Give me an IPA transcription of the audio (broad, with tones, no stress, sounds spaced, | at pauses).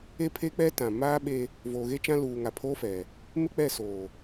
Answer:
e˦ pʰ e˦ k͡p ɛ˦ t ã˨ m aː˦ ɓ e˦ | v oː˨ ɣ e˦ t͡ʃ ã˦ l uː˨ ŋ a˨ pʰ oː˦ f ɛ˨ | m ɪ˦ k͡p ɛ˦˨ s oː˨